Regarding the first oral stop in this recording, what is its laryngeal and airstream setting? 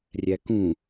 plain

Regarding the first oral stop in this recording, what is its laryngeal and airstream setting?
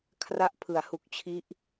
aspirated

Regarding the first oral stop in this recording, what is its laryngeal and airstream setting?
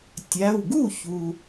plain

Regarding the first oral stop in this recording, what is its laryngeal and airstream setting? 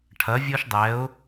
aspirated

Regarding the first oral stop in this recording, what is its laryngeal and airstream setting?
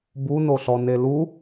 plain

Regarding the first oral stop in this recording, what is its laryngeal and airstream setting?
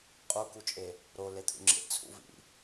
ejective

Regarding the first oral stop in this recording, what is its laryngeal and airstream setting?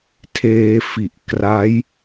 aspirated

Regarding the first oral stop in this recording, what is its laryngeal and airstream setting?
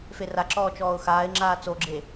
click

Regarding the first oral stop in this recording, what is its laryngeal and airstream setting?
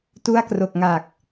plain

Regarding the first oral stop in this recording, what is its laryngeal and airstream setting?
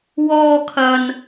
aspirated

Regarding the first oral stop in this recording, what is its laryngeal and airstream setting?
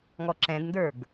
click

